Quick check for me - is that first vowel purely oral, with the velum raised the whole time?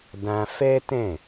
no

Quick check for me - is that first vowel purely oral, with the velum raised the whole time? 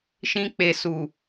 no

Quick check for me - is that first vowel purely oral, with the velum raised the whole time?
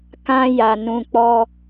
no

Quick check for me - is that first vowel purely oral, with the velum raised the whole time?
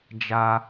yes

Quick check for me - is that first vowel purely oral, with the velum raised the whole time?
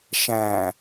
no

